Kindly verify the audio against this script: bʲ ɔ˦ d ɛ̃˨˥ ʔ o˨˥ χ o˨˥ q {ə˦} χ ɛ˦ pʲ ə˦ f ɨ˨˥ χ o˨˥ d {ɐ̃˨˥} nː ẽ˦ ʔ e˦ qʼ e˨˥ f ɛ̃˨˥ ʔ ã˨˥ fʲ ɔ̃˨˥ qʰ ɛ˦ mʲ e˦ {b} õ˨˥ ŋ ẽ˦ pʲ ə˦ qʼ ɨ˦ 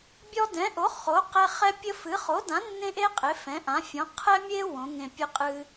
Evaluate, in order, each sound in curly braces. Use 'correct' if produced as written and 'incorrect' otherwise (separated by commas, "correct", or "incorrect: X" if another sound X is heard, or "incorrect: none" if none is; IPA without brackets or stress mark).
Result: incorrect: ɛ˦, incorrect: ã˨˥, incorrect: w